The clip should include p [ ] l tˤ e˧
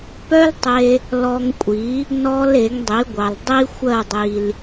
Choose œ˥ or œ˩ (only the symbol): œ˥